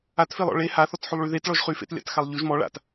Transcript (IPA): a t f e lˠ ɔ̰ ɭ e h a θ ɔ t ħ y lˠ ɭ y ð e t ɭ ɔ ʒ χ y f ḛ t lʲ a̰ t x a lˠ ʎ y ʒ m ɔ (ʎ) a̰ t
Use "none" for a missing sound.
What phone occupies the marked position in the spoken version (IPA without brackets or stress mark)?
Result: ɭ